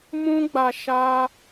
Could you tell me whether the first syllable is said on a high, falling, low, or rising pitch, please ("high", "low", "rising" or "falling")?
high